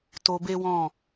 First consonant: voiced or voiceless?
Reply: voiceless